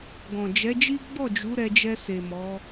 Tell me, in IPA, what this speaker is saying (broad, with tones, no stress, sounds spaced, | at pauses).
ɡ ɔ̃˨ d͡ʒ ɛ˨˦ d͡ʒ i˦ ɡ͡b ɔ˦˨ d͡ʒ u˨˦ ɾ ɛ˧ d͡ʒ ɛ˧ s e˨ m ɔ˨˦